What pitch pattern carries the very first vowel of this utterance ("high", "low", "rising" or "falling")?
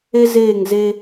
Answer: high